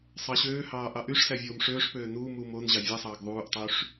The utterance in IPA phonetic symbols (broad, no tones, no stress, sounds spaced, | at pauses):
sˤ ɑ ɕ øː h ɑː ʔ ɑ ʔ y ʂ s æ vʲ oː m ʂ øː ʂ p øː n uː m uː m o n ʑ ɑ vʲ e sˤ ɑː ɡ ðˤ uː ʔ tˤ y ʂ